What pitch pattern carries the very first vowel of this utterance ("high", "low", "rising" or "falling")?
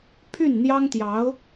falling